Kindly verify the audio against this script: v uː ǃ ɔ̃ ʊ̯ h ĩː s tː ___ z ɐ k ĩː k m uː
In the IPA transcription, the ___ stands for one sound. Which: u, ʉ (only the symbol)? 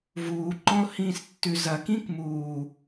ʉ